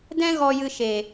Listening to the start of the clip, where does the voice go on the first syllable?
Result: high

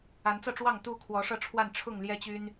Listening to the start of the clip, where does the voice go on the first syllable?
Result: rising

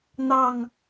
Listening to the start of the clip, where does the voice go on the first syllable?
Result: falling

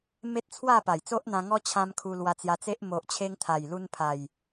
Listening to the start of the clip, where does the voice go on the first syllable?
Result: high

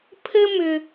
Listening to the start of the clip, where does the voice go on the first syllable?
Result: high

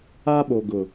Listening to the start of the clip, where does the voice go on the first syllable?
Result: high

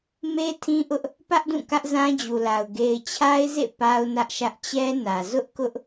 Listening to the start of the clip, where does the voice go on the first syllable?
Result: high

